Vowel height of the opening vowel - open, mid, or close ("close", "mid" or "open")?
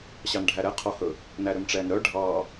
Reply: open